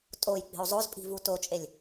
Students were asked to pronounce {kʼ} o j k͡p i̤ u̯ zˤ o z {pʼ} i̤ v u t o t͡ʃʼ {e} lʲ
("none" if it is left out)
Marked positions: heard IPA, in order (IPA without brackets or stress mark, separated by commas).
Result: tʼ, pʼ, e